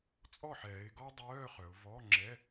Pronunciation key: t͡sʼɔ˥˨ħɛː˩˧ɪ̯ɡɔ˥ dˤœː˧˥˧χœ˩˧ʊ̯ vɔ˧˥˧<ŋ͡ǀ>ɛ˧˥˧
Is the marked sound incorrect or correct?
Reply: incorrect: ŋ͡ǁ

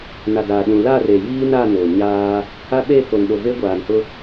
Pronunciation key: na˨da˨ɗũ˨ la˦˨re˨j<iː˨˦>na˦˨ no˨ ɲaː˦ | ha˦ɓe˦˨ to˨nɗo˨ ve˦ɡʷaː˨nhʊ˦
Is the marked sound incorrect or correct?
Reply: incorrect: iː˦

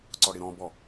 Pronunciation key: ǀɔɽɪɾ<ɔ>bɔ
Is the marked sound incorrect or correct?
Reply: incorrect: ɔ̃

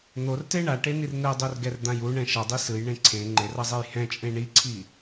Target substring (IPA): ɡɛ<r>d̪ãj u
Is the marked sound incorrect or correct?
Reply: correct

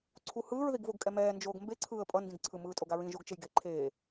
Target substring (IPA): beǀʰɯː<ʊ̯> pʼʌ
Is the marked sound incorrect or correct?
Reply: incorrect: ə̯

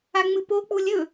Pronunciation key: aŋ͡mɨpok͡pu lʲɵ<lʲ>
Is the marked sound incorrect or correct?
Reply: incorrect: none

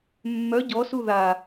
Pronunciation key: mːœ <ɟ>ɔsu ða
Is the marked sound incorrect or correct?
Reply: correct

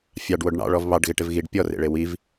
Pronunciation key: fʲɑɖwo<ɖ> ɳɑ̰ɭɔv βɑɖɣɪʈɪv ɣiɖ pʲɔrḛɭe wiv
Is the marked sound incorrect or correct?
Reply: correct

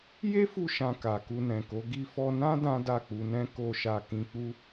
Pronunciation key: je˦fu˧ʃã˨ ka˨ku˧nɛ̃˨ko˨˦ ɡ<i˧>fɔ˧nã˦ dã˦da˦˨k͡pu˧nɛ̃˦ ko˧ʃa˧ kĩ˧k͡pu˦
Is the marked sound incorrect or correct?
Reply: correct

